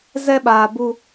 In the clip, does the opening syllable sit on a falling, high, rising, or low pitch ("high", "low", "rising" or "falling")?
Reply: high